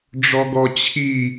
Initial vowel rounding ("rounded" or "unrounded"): rounded